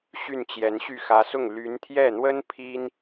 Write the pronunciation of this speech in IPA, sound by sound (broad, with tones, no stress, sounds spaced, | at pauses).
ɕ y˥˩ n t͡ɕ j ɛ˧˥ n ɕ y˥˩ x ä˧˥ s ʊ˥˩ ŋ l y˧˥ n t̪ʰ j ɛ˥˩ n̪ w ə˥ n pʰ i˥ n